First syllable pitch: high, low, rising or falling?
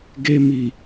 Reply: low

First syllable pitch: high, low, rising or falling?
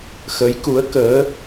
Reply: rising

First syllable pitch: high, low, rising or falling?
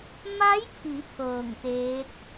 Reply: rising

